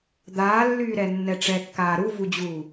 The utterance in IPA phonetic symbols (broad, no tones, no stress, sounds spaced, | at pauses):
d̪ aː lː yː ɾ ɛ nː ɛ ʈ͡ʂ ɛ kː aː ɾ u v u d͡ʑ uː